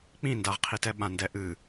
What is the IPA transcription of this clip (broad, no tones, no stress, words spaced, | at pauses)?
k͡pĩndaʁqʰitɛ ɓãndɛʔɨ